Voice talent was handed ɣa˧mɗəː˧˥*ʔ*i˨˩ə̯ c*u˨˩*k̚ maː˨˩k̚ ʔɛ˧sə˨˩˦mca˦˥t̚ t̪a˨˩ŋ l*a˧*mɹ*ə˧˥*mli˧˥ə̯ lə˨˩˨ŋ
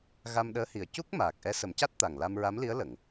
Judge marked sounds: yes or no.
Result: no, no, yes, no

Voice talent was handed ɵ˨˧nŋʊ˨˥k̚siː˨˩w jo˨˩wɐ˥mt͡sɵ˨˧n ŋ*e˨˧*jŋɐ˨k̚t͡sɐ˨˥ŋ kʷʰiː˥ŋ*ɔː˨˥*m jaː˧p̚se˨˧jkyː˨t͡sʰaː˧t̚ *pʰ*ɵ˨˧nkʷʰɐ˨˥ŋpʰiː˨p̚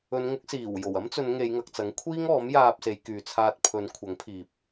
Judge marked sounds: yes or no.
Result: yes, yes, yes

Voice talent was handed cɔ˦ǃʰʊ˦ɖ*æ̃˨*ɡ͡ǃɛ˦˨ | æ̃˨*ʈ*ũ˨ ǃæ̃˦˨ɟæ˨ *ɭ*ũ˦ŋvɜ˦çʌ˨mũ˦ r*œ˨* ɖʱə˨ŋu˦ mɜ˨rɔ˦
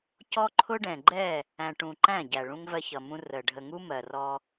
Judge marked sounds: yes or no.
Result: no, yes, yes, no

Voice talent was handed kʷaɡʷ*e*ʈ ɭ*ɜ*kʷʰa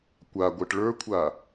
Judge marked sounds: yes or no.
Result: yes, no

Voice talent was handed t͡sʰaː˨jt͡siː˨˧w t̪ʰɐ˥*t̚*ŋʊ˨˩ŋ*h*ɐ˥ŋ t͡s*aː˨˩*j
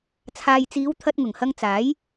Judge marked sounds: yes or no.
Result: yes, yes, no

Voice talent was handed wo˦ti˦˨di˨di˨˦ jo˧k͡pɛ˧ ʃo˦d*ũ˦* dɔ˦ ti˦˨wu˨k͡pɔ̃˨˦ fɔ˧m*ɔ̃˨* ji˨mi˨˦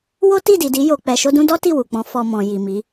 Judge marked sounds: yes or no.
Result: yes, yes

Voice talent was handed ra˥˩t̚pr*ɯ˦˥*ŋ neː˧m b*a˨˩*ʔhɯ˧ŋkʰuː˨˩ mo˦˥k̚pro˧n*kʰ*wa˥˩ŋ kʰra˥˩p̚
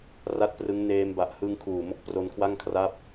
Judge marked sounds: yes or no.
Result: yes, yes, yes

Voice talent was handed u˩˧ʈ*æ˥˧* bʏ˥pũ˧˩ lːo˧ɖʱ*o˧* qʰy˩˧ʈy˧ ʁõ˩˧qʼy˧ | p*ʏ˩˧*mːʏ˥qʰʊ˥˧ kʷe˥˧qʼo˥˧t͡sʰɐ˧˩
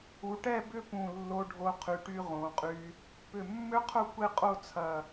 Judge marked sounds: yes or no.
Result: no, yes, no

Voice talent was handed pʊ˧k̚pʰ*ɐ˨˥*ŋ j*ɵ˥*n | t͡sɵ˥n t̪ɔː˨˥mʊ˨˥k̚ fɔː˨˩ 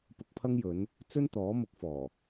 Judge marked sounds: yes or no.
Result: no, no

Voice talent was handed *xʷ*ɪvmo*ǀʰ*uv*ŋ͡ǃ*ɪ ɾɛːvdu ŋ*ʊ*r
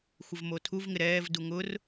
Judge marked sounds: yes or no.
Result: yes, no, no, yes

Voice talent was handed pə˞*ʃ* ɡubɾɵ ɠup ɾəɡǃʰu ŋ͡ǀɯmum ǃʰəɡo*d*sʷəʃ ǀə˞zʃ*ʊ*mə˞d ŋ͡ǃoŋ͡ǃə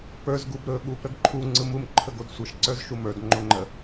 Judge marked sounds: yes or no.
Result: no, yes, no

